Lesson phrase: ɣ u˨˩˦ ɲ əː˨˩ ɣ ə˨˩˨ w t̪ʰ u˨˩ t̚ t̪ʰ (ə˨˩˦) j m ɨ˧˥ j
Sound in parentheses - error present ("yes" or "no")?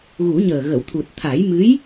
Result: yes